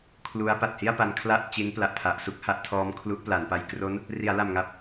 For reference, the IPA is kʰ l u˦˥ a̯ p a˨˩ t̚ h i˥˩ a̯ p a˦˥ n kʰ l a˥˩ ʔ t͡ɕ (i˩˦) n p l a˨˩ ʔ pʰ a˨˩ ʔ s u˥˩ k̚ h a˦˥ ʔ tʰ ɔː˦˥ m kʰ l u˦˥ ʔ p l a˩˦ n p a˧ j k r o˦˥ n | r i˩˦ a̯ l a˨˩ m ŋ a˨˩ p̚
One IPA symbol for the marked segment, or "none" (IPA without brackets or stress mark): i˦˥